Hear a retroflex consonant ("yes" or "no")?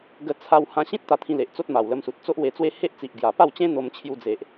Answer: no